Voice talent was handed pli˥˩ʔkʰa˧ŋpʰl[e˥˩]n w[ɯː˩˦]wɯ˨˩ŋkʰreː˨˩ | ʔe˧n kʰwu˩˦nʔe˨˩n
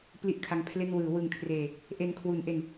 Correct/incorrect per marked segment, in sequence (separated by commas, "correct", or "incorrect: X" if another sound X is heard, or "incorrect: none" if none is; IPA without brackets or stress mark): correct, correct